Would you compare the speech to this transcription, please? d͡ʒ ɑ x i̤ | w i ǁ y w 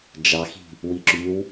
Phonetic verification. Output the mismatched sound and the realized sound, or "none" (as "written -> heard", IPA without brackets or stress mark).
none